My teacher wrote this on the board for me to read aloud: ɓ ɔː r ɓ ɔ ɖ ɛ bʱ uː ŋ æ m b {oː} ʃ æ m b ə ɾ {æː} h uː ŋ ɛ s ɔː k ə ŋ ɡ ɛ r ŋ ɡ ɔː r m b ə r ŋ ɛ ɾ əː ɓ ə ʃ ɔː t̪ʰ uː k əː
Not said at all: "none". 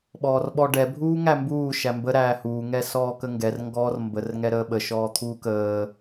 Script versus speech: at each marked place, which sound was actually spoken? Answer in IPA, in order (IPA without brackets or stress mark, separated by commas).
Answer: uː, æː